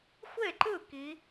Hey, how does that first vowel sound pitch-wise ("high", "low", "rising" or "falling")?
falling